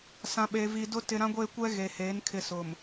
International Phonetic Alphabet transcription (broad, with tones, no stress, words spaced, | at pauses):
sã˨ɓe˨vi˨dʊ˦ tɪ˨ɾã˦ ɡʷeː˦kʷɛ˦ ɣe˨heː˨˦n kʰɪ˨sʊ˨m